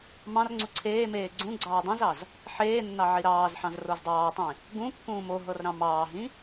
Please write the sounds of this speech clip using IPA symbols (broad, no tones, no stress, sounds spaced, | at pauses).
m ɑ̃ r ŋ͡ǀ u ǀʰ eː m eː ɡ͡ǀ ũ ɡ͡ǀ ɑː dˤ ĩ z ɑ z | ħ eː nː ɑ ʕ i ɾ ɑː z ħ ɑ̃ z r o z dˤ ɑː tˤ ẽ | ɡ ũ kː ũː m o ɦ ɤ r ɾ ɑ̃ m ɑː ɦ ĩ